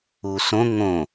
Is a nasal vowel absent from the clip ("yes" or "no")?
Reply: no